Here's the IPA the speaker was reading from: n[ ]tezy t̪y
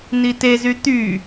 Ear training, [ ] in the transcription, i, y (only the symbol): i